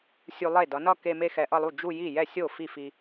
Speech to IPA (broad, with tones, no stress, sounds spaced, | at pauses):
sʲ u˧ lˠ e˥˩ d ʌ˩˧ n ʌ˥˧ k e˧ m e˥˧ x ɛ˧ ʔ ʌ˥˧ lˠ u˥˩ d͡ʒ u˥˧ j i˥˩ j ɛ˥˩ sʲ o˥˩ f i˥˩ f i˧